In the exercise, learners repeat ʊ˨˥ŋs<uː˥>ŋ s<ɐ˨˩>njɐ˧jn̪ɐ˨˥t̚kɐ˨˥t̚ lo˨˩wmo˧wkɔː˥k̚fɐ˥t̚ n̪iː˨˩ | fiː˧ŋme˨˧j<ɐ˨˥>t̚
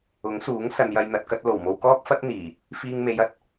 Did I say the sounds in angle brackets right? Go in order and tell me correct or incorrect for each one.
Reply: incorrect: uː˨˥, incorrect: ɐ˨, correct

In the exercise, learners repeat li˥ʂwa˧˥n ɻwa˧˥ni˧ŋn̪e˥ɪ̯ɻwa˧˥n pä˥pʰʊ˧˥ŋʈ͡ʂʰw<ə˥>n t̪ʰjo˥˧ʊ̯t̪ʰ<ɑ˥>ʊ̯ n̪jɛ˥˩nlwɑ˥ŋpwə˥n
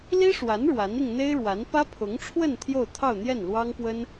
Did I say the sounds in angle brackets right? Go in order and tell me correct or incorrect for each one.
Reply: incorrect: ə˥˧, incorrect: ɑ˥˧

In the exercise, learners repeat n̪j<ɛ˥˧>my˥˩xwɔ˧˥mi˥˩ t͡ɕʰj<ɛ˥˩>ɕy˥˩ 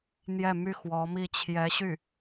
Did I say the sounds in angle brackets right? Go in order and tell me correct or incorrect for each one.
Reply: correct, incorrect: ɛ˧˥

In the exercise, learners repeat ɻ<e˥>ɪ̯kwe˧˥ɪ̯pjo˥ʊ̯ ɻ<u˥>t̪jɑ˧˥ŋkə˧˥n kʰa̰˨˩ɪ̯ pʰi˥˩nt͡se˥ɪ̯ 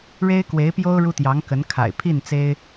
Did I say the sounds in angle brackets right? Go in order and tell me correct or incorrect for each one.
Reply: correct, correct

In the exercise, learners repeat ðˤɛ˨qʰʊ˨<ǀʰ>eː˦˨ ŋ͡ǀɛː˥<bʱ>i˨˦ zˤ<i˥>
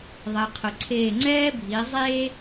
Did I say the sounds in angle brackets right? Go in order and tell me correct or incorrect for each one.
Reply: correct, correct, incorrect: e˥

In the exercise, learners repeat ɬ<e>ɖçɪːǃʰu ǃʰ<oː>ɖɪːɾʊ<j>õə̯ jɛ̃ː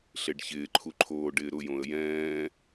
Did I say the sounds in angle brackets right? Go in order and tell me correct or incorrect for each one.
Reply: correct, correct, correct

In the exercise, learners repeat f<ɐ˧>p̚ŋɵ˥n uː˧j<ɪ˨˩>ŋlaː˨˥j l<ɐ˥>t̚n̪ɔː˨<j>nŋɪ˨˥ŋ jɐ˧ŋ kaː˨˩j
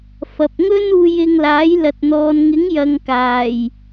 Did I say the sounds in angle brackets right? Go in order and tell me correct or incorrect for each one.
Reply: incorrect: ɐ˨, incorrect: ɪ˧, incorrect: ɐ˨, incorrect: none

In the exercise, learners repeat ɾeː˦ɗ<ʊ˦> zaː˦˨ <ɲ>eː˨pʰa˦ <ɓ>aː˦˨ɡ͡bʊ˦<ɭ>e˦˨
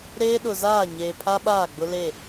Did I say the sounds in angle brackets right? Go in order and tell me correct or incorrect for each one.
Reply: incorrect: ʊ˨, correct, correct, incorrect: l

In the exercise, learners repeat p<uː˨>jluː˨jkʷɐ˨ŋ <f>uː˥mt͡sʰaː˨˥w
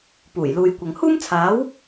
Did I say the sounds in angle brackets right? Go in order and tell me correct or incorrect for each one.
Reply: incorrect: uː˨˩, incorrect: h

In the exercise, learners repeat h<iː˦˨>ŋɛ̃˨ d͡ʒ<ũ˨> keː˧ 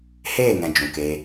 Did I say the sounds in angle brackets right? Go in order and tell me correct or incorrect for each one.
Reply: incorrect: eː˦˨, correct

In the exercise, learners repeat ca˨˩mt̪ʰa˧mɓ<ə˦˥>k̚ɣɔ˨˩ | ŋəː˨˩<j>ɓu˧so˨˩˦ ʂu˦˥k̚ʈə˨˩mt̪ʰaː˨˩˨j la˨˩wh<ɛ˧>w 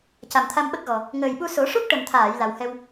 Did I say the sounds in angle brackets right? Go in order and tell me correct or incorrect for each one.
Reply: correct, correct, correct

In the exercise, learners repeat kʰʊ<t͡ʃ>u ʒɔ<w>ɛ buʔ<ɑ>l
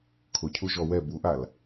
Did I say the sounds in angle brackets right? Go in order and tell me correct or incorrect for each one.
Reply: incorrect: cʰ, correct, incorrect: a

